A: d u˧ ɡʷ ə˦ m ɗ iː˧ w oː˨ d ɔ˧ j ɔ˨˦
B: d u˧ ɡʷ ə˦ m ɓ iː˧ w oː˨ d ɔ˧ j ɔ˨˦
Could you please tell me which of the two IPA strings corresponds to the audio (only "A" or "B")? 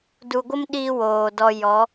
A